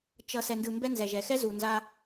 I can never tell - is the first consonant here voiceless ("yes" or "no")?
yes